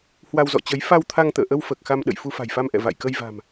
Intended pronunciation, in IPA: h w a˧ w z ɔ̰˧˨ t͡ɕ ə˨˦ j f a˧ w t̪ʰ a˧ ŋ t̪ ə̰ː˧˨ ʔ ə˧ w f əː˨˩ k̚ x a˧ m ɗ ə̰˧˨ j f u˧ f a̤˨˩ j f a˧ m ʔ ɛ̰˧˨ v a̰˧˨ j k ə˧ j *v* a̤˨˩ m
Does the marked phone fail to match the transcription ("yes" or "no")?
no